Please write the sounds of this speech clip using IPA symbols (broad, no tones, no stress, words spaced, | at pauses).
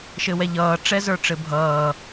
ʃɘwɛʎʌː ʈ͡ʂɛzə˞ʈ͡ʂɘbʱʌː